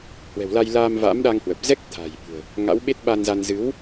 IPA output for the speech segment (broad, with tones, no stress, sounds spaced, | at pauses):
h w ɛ̤˨˩ w l a˧ j l aː˧ m v a̰˧˥ m ɗ a˧ ŋ h w ə˨˩ p̚ z ɛ˦˥ k̚ t̪ʰ a̤˨˩ j ɓ ṳ˨˩ ə̯ | ŋ a̰˧˥ w ɓ e˦˥ t̚ ɓ a˧ n z a˧ n z ɨ˨˦ w